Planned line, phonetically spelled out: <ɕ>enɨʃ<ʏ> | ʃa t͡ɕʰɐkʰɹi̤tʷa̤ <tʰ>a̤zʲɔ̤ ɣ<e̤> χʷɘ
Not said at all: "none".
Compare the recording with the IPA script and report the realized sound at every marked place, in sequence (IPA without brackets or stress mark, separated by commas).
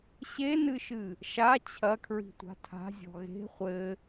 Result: ɕ, ɨ, tʰ, e̤